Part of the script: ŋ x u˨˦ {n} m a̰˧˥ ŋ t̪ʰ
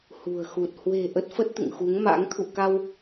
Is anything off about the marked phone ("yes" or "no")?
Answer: yes